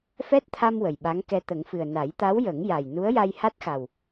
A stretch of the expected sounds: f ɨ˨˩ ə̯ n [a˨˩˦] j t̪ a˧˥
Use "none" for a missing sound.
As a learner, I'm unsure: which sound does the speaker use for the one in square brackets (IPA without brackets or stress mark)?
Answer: a˨˩˦